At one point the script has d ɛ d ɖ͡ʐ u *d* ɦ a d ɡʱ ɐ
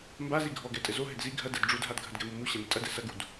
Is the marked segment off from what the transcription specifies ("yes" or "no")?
no